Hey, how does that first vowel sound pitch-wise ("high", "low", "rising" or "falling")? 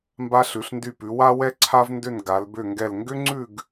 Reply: high